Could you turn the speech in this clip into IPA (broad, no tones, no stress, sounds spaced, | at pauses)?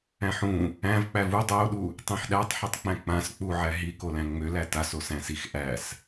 æ̃ ħ ũ | æ̃ v k͡p æ v u dˤ o ɗ u | tˤ ĩ ħ ɗ æ tˤ ħ i tˤ k͡p æ̃ k͡p ã s k͡p u ʕ æ ɦ i k o l æ̃ ŋ͡m ø l æ t a s o s æ̃ s i x ʔ æ s